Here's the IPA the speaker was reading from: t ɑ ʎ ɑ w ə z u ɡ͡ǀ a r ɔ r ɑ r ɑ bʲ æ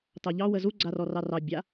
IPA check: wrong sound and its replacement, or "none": æ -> a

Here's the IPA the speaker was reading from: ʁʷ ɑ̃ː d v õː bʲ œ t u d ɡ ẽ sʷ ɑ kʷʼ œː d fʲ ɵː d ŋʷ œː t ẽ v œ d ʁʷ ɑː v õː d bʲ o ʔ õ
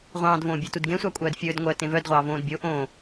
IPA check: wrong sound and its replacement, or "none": none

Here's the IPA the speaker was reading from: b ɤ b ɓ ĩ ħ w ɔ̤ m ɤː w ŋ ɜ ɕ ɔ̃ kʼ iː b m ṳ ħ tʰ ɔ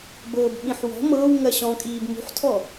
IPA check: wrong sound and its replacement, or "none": none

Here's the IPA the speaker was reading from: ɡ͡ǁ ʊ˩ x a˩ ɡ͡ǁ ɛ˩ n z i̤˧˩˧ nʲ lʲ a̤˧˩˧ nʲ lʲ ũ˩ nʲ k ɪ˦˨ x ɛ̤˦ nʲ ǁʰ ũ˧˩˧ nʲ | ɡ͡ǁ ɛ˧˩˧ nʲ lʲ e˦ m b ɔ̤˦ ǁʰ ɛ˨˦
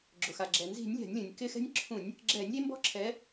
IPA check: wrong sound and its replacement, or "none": none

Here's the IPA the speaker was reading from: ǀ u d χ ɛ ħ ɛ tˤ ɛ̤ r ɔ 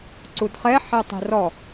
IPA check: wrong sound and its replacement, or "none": none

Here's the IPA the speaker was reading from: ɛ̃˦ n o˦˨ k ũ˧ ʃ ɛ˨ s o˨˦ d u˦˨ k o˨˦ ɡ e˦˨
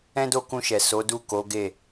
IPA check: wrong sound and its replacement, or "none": n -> d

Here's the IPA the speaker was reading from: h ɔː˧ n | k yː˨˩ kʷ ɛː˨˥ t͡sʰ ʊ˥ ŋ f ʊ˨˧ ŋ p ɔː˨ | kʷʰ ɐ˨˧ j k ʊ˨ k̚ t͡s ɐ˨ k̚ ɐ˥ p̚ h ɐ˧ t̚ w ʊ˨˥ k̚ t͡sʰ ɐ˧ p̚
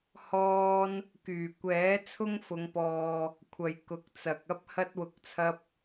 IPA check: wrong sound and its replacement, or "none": none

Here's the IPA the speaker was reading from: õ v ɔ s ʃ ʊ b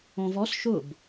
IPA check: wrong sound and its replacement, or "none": none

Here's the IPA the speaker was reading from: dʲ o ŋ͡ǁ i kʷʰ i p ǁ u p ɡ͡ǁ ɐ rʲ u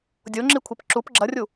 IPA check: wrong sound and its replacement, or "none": none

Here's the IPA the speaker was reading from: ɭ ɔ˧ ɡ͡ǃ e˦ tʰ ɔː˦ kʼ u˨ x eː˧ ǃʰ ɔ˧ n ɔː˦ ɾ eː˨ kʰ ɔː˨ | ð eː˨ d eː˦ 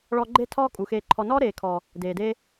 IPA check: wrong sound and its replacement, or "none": ð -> d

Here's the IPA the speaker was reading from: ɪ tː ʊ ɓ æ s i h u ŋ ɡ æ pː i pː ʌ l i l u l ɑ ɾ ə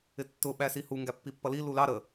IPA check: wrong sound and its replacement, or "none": none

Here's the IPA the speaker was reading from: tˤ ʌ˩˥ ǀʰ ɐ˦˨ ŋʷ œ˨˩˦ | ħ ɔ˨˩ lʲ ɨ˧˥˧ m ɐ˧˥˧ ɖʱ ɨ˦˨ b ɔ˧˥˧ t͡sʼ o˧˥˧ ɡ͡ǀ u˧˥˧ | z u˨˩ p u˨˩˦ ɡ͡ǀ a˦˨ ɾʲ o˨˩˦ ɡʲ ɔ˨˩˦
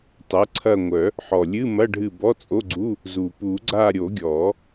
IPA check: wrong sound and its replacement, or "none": none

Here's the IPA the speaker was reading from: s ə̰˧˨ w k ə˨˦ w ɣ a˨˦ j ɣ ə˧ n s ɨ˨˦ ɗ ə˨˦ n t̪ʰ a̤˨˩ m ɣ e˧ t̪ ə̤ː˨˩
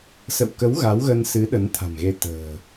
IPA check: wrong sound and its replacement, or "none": j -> w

